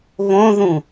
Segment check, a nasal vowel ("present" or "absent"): present